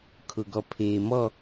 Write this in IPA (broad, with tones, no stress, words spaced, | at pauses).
kʰʊ˨ɡɔ˨ pʰeː˨mɔ˦˨